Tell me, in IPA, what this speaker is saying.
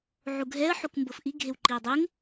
ʕuɡʱɛə̯ ħukmbɤfʔi ɡʱewǃiə̯dˤeŋ

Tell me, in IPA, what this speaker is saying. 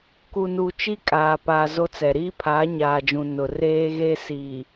ku˨nu˨ t͡ʃi˦kʼaː˨ pa˨ zo˦t͡sɛ˨ ɾiː˦pʰaː˨˦ɲaː˨d͡ʒũ˨ nʊ˨ reː˦ɣe˦ si˨

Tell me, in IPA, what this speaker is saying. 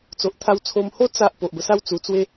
t͡so˨ʔt̪ʰa˧wt͡sʰo˧mho˦ t͡sa˦ʔ po˨ʔbə˧sa˦w t͡su˧t͡swe˦

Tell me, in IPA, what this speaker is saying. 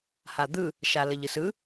had̪ɯ | ʃaləʎɯsɯ

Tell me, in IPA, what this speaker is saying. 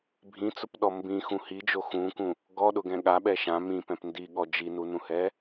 bʱĩt͡sʊpɗɔ mbĩxũ hid͡ʒo xũkũ | ɡɔɗʊɡɛ̃ ɠaɓɛ ʃã mĩpɛ̃p ndiɠɔ d͡ʒinunũhɛ

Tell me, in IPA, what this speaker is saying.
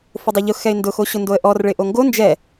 fʊdˤoʎʊ xɛɪ̯ndʊ xoɕʊndoə̯ʔɔr ɭɪʔoŋɡo nd͡ʒɛ

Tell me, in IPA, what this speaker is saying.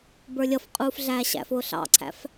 bə˞lʲʌf qʼuːfɮæːɕæ̰fʊː ɬɑ̰ǀʰæ̰f

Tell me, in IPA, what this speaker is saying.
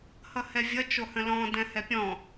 hʌhɛvʲʌ t͡ʃohə̃lɔ̃ dɛ̃hɛpʲɔ̃

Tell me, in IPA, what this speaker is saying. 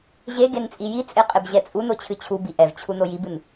ʑeɡen t͡sʼijit͡sʼe qʼebʑɛt͡sʼuno t͡ɕʰɨt͡ɕʰubi ʔɛvt͡ɕʰu nojibɨn

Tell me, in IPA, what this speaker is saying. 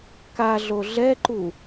kaɮo ɮɛǃu

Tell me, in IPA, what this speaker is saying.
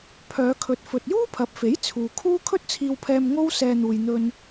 pʰœː˨˧kʰɵ˨t̚ fɵ˨t̚juː˥pʰɐ˨˥p̚fe˨˥j t͡sʰuː˨kʰuː˥ kʰɵ˥t̚t͡sʰiː˧wpʰɛː˧m ŋo˥w sɛː˧n̪uː˨jn̪ɵ˧n

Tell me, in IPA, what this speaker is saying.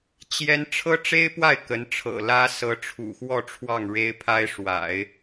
t͡ɕjɛ˥n ʈ͡ʂʰɤ˥ʈ͡ʂe˥ɪ̯pwa˥˩ɪ̯ kə˧˥nʈ͡ʂʰɤ̰˨˩lä˥ sɤ˧˥ʈ͡ʂʰṵ˨˩xwɔ˥˧ ʈ͡ʂʰwɑ˥˩ŋɻe˥ɪ̯pʰa˥ɪ̯ʂwa̰˨˩˦ɪ̯

